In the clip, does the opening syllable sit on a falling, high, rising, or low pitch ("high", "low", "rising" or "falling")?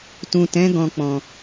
low